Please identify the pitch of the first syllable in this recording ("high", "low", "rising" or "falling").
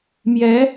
rising